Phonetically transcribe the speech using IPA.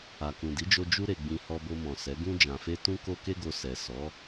a˨ k ũ˨ d i˨˦ d͡ʒ o˧ d͡ʒ u˦ ɾ e˧ ɡ͡b ĩ˧ h ɔ˧ b o˧ m ɔ̃˨ s ɛ˨˦ ɡ ũ˧ d͡ʒ ã˨ f e˧ t ũ˦ k o˦ k e˦ ɡ o˧ s ɛ˨ s ɔ˨˦

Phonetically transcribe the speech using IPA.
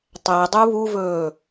tˤ æ dˤ u β u v ɵː

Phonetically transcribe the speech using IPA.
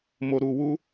m o˨ ɾ u˨ w u˧

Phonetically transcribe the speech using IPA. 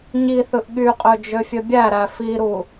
ɲ i θ ɯ ʔ ɠ y qʼ ø d͡ʒ ø fʲ ø bʲ æ ɾ æ f i ɾ u

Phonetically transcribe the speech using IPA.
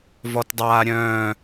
v ɔ t dˤ aː ɾʲ œ̃ː

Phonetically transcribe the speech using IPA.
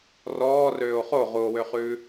r ɔː r øː o̯ χ o ʁ u o̯ w ø χ ʉː

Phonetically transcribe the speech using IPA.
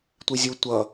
tʷ i zʲ u tʷ ʌ

